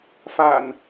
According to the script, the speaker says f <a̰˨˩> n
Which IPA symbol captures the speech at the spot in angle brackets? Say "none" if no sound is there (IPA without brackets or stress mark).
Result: a̰˨˩